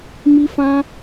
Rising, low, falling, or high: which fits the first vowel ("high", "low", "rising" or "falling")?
high